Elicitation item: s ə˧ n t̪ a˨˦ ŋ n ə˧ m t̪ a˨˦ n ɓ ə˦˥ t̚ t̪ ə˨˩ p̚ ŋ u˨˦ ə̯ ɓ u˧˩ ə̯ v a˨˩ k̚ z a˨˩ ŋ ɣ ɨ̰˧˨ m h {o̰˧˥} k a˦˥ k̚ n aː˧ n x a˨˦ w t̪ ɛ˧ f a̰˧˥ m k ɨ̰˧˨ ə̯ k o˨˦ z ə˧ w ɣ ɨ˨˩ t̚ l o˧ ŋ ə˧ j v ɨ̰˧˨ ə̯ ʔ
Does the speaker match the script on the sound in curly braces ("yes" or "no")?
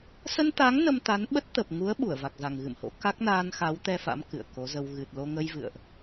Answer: yes